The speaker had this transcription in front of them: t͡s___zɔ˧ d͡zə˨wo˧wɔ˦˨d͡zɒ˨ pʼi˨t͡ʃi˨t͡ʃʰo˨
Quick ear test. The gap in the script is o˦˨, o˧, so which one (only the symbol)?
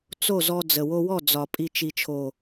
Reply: o˦˨